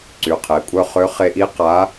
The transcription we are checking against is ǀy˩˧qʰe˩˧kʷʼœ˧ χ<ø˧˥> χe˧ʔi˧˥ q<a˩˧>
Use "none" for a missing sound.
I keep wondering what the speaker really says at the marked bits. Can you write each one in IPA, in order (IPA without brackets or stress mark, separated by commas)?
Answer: ø˧˥, a˧˥